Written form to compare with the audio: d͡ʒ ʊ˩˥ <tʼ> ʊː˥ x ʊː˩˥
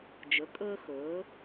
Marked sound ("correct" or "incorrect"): incorrect